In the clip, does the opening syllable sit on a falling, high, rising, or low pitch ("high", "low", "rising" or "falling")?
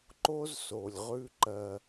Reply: high